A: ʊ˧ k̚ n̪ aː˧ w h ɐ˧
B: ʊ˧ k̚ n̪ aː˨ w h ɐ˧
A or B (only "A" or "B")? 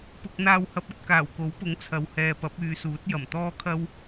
A